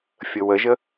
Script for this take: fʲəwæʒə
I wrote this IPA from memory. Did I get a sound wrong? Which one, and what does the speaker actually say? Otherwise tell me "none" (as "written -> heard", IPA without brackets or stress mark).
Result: æ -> ə